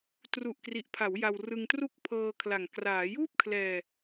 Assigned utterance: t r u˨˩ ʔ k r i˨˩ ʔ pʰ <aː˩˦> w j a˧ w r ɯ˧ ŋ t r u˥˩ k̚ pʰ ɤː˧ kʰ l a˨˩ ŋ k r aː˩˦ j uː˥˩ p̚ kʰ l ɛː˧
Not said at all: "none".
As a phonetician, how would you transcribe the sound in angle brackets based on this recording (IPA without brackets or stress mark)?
a˩˦